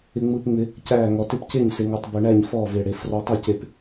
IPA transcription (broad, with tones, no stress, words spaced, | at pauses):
ɪ˧ŋ͡mɯː˧pŋ͡mɪ˧ | cæː˥˧ŋɔ˧ tɪ˥˧pcɪː˥˧ɲsɪ˧ŋɔ˧tˤ bø˧ɳæ˥˧ɲ fɔː˥˧ve˧ɽe˧ frɔ˧tˤæ˥˧ce˧p